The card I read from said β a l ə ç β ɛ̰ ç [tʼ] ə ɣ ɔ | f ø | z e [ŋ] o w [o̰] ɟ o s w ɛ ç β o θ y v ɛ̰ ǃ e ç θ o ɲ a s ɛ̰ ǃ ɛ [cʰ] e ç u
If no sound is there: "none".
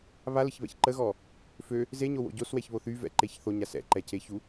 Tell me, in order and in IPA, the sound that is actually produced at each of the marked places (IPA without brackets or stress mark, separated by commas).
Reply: ǃ, ɲ, o̰, cʰ